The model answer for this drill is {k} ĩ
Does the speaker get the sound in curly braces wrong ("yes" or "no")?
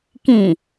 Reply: no